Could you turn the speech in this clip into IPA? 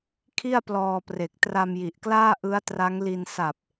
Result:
kʰi˥˩a̯plɔː˧pre˨˩k̚ tra˧mji˨˩ʔklaː˥˩ ʔɯ˦˥a̯tra˦˥ŋli˧n sa˨˩p̚

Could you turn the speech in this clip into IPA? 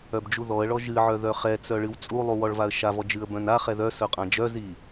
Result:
œbd͡ʒuðɔə̯ɭɔ ʒɨʕœ ðœχɛt͡sœ ɭɨwt͡sʼulˠu wɔɭvaə̯ʃavɔ d͡ʒɨə̯bœ̃naχɛ ðœ sœqʼãd͡ʒœzi

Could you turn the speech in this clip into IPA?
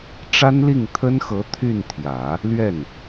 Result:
ʈ͡ʂa˥nli˥˩ŋt̪ʰə˥nxɤ˧˥ t̪ʰy˥˩nt̪ʰjä˨˩˦ | lɥɛ˥˩n

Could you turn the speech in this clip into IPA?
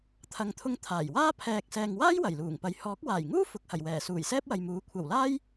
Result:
t̪ʰɐ˨ŋt̪ʰʊ˧ŋ t̪ʰaː˨˩jwaː˥ pʰɛː˨k̚ sɛː˨ŋwaː˥j wɐ˨˩jluː˨˩ŋpɐ˨j hɔː˨˥k̚waː˨˩jŋuː˥ fʊ˨˥k̚hɐ˨˩jwɛː˨˩ suː˨˩jsɛː˥p̚wɐ˨jmuː˨˥ kʷʰɐ˨˩wlaː˥j

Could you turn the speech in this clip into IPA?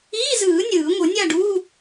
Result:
iː˧˥˧zɯː˨˩˦ nʲɯː˨˩˦ŋʷɯ˨˩˦ nʲa˥˨ɖuː˧˥˧

